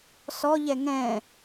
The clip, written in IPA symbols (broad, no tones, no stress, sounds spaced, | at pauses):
s ɔ ʎ ɛ ŋ ɛ̃